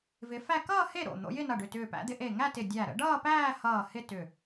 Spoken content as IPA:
v ɪ˨˦ f æ˥˧ k ʌː˥˧ h e˥˩ ɾ o̰˧˩ n̪ o̰˨˦ j ɪ˥˧ n ʌ˧˩ ɖ ʏ˧˩ t ʏː˧˩ p æ̰˨˦ d̪ ɪ˨˦ ʔ e˧˩ ŋ æ˥˧ t ɪ˧˩ dʲ æ˧˩ ɾ ə̰˨˦ ɖ ʌː˥˧ p æː˥˧ h ʌː˧˩ h ɪ˥˧ t ʏ˧˩

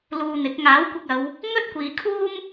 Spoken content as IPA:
l uː˧ n̪ ɪ˨˥ k̚ ŋ aː˨˥ w kʷ ɪ˧ k̚ ɐ˨˧ w | ŋ ɵ˥ t̚ kʷ iː˨ kʰ uː˥ m

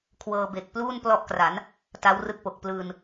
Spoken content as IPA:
kʰ w ɤː˧ b e˨˩ k̚ p l uː˥˩ n p l ɔ˦˥ ʔ k r a˩˦ n | t a˦˥ w r ɯ˦˥ k̚ p o˨˩ k̚ p l ɯː˧ n

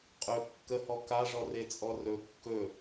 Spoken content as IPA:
qʼ ɵ kː ə h ɔ k a ʐ ɔ r e t͡sʼ ɔ r ɵ kː ɵ

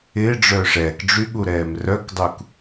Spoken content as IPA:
ɪː ɖ͡ʐ œː ʂ ɛː k ɖ͡ʐ y ɠ u ɾ ɛː m r œ k dˤ u k

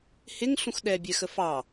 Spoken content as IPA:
h ɪ ŋ ɬ ũ x ɗ ɛ bʲ ɛ x ə f ɑ

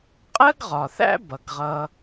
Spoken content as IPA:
qʼ ɜ˥ ɡ ʁ ɒ˩ θ æ̰˥ b ʌ˩ ɡ ʁ ʌ˧

